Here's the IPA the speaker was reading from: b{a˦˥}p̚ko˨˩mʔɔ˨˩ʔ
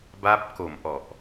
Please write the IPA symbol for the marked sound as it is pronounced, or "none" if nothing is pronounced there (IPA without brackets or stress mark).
a˦˥